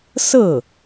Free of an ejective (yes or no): yes